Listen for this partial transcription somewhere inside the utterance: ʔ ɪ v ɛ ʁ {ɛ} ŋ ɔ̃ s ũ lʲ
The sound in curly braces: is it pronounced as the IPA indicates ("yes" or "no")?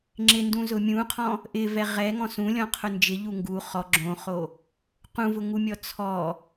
yes